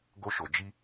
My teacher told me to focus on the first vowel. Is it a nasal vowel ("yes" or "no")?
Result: no